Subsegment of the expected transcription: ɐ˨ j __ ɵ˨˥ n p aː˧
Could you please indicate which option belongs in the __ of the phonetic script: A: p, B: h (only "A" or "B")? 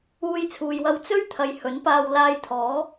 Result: B